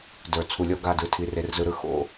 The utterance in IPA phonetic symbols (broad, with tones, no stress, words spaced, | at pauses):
də˞˨ t͡sʰu˨lʲɔ˦ɡa˦˨dɯ˨ tʰi˨re˨rzɯ˨ɾɯ˦ xo̰˦